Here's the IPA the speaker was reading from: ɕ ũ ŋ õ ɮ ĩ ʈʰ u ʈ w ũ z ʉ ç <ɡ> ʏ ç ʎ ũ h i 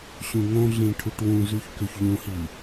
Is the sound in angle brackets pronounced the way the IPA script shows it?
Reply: no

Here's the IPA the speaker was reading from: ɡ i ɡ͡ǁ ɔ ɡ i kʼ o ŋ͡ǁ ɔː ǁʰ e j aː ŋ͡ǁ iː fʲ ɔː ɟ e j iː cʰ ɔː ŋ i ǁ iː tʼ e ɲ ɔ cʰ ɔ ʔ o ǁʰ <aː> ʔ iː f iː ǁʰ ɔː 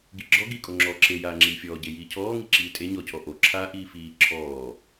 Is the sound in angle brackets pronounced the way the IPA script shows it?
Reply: yes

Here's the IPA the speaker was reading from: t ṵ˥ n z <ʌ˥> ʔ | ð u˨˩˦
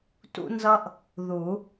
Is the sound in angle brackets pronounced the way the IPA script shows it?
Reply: yes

